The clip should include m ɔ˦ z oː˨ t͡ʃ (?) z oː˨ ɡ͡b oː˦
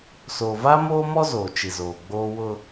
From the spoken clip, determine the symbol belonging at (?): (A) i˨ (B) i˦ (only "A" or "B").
A